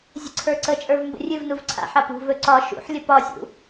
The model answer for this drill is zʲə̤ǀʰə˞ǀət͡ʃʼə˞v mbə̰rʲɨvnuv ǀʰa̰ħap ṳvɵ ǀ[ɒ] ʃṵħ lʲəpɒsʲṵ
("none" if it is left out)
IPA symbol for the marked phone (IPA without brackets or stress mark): ɒ